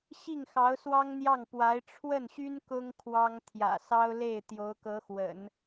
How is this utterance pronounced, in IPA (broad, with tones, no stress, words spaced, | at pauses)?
ɕi˥˩ŋxɑ˧˥ʊ̯swɑ˥ŋn̪jɑ˥˩ŋ pwa˧˥ɪ̯ ʈ͡ʂʰwə˥˩nɕy˥n kʊ˥ŋ kʰwɑ˥ŋ t̪ʰjä̰˨˩sɑ˥ʊ̯le˥˩ɪ̯ t̪jo˧˥ʊ̯kɤ˧˥xwə̰˨˩˦n